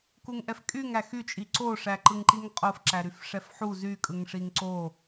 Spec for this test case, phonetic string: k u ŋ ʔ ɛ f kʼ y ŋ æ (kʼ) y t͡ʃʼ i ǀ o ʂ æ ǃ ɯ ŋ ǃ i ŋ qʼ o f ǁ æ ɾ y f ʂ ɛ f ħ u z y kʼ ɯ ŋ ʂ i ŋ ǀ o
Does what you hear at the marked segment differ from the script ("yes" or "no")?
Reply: yes